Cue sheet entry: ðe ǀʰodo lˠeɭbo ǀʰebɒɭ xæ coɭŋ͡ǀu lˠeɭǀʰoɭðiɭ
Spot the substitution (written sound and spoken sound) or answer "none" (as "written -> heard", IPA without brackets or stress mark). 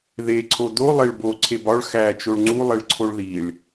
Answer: c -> t͡ʃ